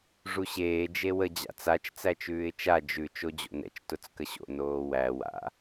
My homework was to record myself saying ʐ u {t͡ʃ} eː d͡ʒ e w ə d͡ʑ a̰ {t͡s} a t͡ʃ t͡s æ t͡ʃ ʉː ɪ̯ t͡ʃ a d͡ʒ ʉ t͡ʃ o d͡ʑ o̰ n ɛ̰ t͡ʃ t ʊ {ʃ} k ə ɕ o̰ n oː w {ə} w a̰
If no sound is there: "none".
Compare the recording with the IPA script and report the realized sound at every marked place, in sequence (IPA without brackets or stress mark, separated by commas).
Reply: ɕ, t͡s, t͡s, æ